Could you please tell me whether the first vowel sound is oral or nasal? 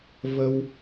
oral